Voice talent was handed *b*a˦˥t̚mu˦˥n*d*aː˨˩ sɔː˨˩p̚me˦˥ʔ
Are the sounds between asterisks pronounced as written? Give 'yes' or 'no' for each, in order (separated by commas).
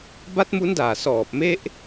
yes, yes